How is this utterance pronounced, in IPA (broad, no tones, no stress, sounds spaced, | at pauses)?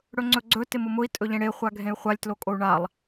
ɽ ɵ ŋ͡ǀ ɵ ɡ͡ǀ ɵ t ɪ m ʊ m ʊ i̯ tʼ ɵ ʎ ẽ ɽ e χʷ a ɡʱ ẽ y̯ χʷ a lʲ t l o kʼ o u̯ ɳ a lˠ